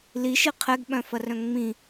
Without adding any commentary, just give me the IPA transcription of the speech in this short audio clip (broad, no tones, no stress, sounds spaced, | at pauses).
l i ʃ i qʰ ɛ ɡ ɓ œ̃ f ɐ r œ̃ ŋ͡m ĩ